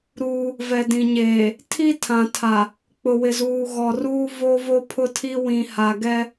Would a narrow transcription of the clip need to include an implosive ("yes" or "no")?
no